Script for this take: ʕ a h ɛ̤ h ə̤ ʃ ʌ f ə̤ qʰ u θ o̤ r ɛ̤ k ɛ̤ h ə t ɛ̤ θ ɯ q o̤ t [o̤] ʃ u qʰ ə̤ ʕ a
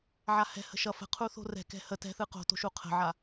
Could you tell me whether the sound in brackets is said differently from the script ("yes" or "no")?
no